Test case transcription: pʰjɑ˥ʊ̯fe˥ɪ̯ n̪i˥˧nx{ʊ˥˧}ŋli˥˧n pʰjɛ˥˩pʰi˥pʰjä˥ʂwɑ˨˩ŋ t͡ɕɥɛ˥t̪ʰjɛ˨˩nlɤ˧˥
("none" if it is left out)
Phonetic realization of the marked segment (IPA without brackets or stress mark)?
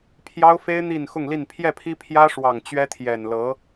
ʊ˥˧